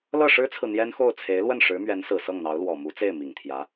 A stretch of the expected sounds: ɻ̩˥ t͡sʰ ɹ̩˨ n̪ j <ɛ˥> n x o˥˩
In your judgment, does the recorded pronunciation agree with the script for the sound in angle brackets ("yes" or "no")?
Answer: yes